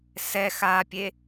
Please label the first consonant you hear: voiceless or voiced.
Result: voiceless